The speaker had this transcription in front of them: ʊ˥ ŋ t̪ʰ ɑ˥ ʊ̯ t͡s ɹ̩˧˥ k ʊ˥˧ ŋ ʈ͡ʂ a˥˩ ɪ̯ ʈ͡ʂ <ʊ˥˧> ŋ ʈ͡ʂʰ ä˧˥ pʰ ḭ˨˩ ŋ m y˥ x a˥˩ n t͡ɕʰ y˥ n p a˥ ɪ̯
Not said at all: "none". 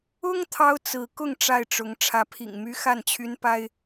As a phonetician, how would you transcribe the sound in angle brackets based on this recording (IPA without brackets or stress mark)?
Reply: ʊ˧˥